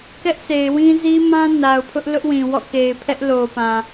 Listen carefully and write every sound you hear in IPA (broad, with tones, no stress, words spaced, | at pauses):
kɛ˦ʔse˨ɪ̯wĩ˦ zi˦mã˦ na˨ʊ̯pʰʊ˦ʔ lʊ˦ʔwĩ˨ wɔ̰˦˨ke˨ɪ̯pʰɛ˦ʔ lo˨pã˨